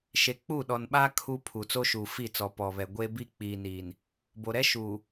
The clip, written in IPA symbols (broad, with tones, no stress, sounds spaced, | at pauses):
ʃ e˨ k͡p u˦˨ ɗ ɔ˨ n ɓ aː˦ kʰ u˦ pʰ u˨ t͡s o˦ ʃ uː˨ f i˦˨ t͡s ɔ˨ p ɔ˨ β ɛ˨ ɡʷ e˦ b i˦ k͡p iː˨ n iː˨ n | b o˨ ɾ ɛ˦ ʃ uː˨